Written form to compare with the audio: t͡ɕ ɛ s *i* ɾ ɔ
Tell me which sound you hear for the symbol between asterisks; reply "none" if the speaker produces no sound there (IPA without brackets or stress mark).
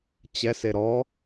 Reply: e